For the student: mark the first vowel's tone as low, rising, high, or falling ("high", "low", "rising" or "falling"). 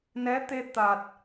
rising